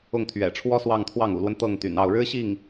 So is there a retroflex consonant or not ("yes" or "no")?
yes